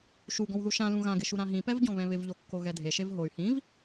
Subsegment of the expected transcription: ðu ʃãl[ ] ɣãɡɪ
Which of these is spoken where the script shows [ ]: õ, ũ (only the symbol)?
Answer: ũ